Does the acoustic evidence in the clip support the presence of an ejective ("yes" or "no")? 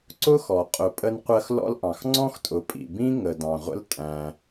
yes